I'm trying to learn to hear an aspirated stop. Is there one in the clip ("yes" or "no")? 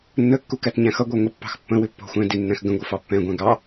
no